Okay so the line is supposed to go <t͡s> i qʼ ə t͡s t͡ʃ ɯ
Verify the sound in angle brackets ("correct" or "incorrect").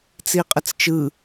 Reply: correct